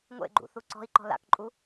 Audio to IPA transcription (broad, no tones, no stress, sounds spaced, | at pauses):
ŋʷ ḛ ɡ͡ǃ ṵ θ u ǀ ɔ̤ i̯ ǃ ɔ̤ l a̰ k ǃʼ u